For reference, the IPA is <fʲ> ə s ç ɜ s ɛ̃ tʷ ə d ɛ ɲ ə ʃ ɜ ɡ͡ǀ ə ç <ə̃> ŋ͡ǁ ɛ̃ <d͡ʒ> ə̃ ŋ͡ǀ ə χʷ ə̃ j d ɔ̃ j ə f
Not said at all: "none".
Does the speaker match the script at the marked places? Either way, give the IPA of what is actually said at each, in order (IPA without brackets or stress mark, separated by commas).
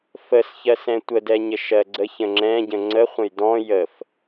f, ə̃, ɟ